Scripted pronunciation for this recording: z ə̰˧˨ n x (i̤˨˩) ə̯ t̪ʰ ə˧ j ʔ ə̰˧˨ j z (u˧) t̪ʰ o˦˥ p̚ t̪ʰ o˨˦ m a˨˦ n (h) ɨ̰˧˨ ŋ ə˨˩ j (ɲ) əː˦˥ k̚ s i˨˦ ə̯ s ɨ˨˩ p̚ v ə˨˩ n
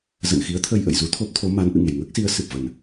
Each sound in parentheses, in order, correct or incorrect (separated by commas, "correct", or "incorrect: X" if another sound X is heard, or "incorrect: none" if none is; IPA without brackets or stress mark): incorrect: i˨˦, correct, incorrect: ʔ, incorrect: ŋ